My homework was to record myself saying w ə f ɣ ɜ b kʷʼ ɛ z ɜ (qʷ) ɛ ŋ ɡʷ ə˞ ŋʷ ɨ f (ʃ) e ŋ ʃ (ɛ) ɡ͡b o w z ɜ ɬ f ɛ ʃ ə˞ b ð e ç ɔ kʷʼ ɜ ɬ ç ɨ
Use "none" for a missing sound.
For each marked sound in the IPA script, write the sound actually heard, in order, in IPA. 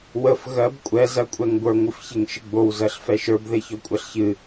kʷʼ, ç, ɨ

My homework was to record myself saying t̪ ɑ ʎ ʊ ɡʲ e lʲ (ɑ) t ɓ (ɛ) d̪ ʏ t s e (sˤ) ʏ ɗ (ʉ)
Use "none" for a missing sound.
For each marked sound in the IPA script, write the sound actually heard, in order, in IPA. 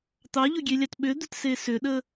ɑ, ʏ, s, ə

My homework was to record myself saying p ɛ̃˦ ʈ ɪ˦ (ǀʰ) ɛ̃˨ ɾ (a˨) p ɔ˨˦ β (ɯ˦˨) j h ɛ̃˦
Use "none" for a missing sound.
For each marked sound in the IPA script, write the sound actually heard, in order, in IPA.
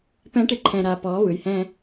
ǃʰ, a˨, ɯ˨

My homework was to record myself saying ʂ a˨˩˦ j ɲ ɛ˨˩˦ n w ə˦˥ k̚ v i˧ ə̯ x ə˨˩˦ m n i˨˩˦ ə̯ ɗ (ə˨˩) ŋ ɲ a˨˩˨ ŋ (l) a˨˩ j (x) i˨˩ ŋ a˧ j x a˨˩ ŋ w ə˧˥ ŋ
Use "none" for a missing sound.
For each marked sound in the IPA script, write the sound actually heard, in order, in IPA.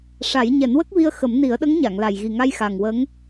ə˧˥, l, ɣ

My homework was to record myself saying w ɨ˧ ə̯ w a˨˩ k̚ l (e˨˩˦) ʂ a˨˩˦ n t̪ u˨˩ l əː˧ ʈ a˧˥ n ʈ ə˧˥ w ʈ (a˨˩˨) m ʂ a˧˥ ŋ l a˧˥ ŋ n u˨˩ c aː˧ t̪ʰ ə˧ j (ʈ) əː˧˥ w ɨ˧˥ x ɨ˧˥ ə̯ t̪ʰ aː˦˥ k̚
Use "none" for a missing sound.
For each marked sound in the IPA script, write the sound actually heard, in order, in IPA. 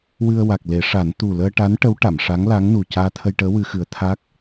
e˨˩˦, a˨˩˨, ʈ

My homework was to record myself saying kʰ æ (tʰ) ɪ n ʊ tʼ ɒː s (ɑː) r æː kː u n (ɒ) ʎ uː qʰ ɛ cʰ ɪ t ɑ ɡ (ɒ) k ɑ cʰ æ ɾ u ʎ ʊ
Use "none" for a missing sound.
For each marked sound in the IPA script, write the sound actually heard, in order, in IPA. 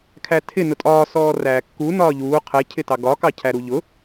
tʰ, ɔː, ɒː, ɒ

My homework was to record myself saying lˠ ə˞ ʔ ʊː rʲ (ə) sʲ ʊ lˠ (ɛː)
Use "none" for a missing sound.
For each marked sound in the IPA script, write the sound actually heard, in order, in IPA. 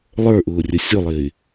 ə, ɪː

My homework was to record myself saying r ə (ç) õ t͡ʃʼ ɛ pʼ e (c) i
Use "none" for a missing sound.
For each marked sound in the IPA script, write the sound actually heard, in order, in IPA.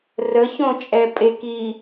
ç, k

